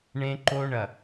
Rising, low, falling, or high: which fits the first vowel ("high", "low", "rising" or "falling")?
high